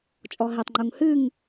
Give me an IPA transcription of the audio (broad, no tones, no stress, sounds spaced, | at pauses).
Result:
t͡ʃʼ ɔ ɦ e tˤ ŋ͡ǃ u ŋ h ɨ ŋ